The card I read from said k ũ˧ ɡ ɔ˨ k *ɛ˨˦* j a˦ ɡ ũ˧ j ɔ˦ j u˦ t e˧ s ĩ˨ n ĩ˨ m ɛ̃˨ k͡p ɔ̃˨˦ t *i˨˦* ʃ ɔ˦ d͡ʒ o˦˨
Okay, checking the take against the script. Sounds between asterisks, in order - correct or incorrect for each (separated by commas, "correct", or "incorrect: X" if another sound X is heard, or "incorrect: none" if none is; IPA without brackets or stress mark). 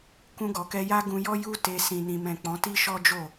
incorrect: ɛ˧, incorrect: i˦